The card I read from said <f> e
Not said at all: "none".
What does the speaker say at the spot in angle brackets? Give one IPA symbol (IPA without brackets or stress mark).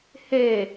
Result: h